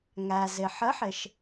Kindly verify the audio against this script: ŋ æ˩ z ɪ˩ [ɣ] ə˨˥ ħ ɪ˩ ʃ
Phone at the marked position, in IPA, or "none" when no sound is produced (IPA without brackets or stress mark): ħ